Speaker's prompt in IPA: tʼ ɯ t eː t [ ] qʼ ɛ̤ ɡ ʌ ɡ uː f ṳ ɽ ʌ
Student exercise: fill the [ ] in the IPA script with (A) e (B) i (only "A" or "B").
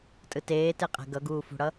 A